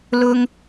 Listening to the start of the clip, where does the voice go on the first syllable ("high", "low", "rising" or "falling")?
high